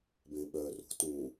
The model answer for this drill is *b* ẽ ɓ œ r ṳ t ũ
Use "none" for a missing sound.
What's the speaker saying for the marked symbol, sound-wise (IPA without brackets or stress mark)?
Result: b